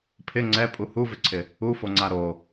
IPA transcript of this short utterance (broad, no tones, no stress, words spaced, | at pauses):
pʰɪ ŋ͡ǀɛpʼu huvɪǀʰɪ | ufoŋ͡ǀa ɾo